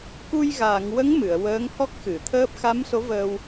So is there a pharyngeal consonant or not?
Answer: no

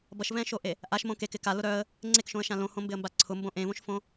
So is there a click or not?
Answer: yes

